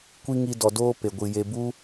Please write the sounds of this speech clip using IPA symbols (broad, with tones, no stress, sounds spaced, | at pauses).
kʷ i˦ ŋ i˧ d ɔ˨ d oː˦ p e˨ ɡʷ ɨ˨ j e˧ b u˦